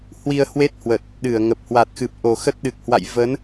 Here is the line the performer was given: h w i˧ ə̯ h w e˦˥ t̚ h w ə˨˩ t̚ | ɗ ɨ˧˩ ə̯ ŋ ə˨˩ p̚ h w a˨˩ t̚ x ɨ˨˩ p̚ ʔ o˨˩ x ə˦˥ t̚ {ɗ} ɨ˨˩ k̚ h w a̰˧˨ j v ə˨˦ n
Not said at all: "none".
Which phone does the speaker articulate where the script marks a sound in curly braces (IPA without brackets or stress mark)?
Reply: ɗ